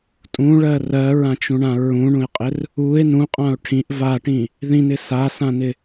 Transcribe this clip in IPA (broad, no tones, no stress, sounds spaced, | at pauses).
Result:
tʼ ũ ɭ ɜ r ɜ ɹ ã t͡ʃ ũ ɳ ã ɹ ũ ɳ ũ e̯ qʼ ɪ r | u e̯ n ũ qʼ ã o̯ ʈʰ ĩ ʔ v a ʈ ĩ | ð ĩ n ɪ s a s ã n ɪ